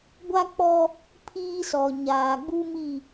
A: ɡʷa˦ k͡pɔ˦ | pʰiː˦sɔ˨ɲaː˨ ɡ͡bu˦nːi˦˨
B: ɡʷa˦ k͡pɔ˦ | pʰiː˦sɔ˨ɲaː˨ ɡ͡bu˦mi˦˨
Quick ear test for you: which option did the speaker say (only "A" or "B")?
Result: B